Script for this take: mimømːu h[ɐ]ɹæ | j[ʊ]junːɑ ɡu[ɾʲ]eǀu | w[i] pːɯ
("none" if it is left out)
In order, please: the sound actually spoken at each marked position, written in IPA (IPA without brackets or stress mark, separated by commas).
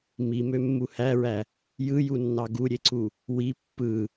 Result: æ, ɯ, ɾʲ, i